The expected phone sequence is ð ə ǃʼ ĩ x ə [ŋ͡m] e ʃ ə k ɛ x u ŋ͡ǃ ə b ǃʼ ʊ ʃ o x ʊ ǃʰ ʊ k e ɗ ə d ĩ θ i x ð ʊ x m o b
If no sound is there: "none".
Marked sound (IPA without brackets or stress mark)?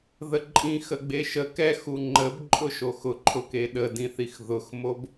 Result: ɡ͡b